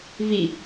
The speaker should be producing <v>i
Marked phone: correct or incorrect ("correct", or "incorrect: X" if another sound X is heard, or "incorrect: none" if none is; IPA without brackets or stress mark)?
correct